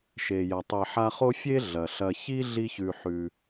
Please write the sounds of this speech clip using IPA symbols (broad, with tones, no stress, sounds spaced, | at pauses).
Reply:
ʃ e˩ j ɐ˩ tˤ e˨ ħ a˦ χ o˥ fʲ e˥ ɮ ɐ˩ ɬ ɐ˨ ç i˥ ɮ i˦ ç ʉ˨ ħ ʉ˨